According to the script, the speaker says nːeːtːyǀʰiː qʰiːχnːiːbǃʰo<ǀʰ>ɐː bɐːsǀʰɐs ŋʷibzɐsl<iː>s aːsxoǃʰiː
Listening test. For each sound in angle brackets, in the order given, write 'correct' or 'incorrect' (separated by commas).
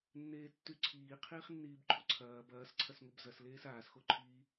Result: correct, incorrect